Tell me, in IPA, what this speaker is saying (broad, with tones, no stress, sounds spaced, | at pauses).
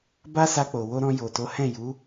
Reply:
b a˦ s a˧ k͡p o˨ w o˧ ɾ ɔ̃˧ j o˨ t o˨˦ h ɛ̃˦˨ j u˨˦